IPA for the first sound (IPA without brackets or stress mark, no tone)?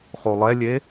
χ